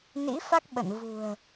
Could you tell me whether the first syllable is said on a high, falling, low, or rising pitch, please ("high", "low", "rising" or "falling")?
rising